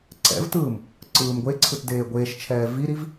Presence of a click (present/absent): present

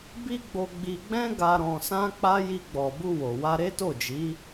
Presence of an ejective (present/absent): absent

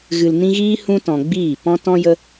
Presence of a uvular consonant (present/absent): absent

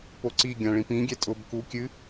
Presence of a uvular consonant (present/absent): absent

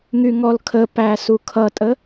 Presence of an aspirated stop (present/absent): present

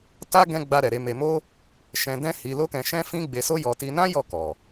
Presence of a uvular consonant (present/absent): absent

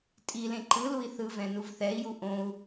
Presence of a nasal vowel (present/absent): present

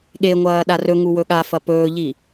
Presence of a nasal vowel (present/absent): absent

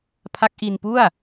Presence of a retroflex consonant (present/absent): absent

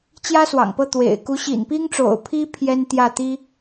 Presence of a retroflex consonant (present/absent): present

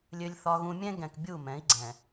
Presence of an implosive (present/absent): absent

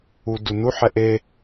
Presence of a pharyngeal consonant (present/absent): present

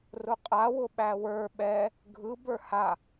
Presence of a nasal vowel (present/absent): absent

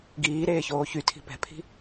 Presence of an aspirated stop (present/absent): present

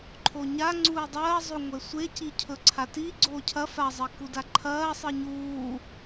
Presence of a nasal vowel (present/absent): absent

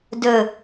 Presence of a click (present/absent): absent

